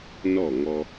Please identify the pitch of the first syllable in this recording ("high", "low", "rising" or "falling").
falling